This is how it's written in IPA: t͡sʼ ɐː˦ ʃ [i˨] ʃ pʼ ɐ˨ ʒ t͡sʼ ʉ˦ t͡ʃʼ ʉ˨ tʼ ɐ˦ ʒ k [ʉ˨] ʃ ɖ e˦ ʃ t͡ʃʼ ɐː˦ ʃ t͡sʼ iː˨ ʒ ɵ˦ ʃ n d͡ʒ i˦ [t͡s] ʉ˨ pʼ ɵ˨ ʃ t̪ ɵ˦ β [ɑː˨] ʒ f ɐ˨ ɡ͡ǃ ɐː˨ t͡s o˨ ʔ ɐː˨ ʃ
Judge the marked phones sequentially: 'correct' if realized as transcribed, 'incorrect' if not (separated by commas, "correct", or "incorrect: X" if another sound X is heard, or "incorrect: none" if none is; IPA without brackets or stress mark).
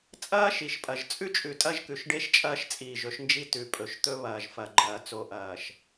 correct, correct, incorrect: t, incorrect: ɐː˨